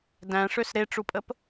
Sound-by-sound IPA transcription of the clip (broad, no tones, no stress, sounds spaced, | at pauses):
d æ̃ ʂ ø s ɾ e ʈ͡ʂ u pʼ ə p